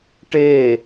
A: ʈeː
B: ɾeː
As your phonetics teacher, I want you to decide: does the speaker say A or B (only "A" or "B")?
A